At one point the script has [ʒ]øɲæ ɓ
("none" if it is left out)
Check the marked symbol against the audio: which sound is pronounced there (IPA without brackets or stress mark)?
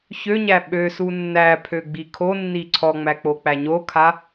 ç